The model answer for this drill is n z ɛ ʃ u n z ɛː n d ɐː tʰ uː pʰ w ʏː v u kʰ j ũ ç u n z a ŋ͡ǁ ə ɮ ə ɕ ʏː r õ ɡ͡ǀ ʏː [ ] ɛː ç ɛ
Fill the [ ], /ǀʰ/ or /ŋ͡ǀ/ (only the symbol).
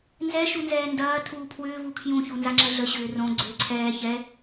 ǀʰ